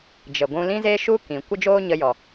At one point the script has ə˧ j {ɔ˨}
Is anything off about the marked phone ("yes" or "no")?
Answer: no